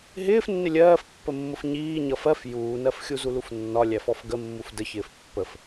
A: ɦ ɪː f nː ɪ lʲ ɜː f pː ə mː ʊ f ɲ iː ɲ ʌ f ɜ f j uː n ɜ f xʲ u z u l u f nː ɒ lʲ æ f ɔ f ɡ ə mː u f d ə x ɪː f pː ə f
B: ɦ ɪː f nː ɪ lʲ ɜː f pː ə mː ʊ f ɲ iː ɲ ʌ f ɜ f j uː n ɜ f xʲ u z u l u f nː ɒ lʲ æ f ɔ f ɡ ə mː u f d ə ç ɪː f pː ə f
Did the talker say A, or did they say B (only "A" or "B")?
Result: B